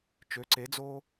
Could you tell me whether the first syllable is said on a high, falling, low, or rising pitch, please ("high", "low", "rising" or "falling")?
rising